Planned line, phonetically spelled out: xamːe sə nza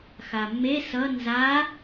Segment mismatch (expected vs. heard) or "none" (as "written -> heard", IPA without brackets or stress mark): ə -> ʌ